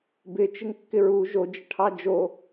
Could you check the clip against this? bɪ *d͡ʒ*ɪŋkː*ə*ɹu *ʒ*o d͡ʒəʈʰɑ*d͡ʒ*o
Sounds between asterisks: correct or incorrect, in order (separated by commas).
incorrect, incorrect, correct, correct